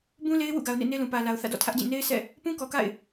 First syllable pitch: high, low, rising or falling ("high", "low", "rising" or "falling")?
high